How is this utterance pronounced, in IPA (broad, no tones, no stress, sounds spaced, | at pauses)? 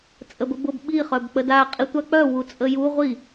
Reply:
t͡sʼ ə b ə b ʊ b ɓ i χ œ b k͡p ə d a qʼ i tʷ a k͡p œ w u t͡sʼ ə j u ʁʷ i